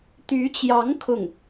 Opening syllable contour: rising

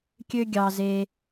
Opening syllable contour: high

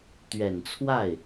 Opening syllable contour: low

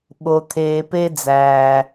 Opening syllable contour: low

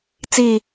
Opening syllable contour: falling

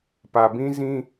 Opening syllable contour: low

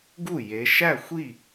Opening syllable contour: falling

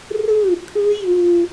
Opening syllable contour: falling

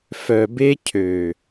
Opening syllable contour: low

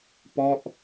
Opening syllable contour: falling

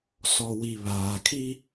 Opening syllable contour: low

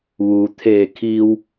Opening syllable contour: low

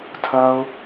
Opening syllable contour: high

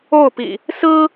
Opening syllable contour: falling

